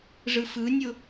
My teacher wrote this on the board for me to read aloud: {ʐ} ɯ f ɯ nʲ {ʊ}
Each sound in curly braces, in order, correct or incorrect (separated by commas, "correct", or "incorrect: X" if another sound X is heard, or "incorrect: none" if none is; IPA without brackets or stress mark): correct, correct